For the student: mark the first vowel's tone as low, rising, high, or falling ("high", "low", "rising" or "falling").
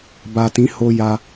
low